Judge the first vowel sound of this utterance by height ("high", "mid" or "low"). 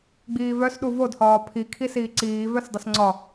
high